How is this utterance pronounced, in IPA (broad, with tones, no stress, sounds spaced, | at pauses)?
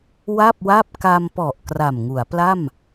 w a˥˩ p̚ w a˥˩ p̚ k a˧ m p ɔ˨˩ ʔ k r a˨˩ m ŋ u˩˦ a̯ p l a˥˩ m